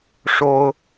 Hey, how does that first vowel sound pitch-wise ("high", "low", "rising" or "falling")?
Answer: high